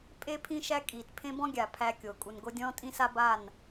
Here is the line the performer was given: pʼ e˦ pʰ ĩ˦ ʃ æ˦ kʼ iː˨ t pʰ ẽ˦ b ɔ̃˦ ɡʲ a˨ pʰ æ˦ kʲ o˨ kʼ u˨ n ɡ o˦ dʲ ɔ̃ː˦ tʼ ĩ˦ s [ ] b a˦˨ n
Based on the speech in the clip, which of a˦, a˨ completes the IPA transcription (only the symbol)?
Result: a˦